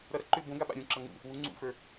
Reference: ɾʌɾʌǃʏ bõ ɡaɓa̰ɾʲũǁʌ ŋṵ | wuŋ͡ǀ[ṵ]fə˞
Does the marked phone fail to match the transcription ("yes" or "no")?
no